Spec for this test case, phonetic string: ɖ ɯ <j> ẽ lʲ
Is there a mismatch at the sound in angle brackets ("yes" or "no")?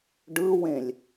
yes